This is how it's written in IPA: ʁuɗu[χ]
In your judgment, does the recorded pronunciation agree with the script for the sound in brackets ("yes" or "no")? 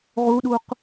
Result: no